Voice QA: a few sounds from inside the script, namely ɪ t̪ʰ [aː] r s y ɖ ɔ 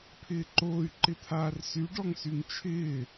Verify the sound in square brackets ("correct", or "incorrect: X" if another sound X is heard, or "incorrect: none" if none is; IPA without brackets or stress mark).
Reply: correct